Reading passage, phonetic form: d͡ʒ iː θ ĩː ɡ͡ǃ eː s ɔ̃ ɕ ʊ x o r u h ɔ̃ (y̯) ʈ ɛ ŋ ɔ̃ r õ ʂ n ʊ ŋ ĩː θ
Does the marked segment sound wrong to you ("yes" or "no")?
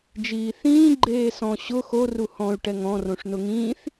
no